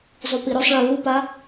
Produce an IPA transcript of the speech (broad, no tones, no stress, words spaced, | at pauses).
zˤupiɾɵsˤɭɨ lupa